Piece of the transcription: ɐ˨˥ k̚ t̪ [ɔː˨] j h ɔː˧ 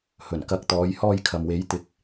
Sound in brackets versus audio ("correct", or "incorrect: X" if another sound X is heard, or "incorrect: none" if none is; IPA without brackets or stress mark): incorrect: ɔː˨˧